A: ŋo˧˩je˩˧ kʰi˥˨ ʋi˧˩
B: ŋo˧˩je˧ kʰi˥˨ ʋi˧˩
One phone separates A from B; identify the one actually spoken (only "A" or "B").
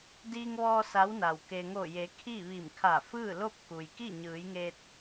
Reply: A